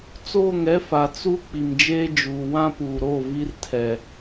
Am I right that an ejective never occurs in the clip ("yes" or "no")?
yes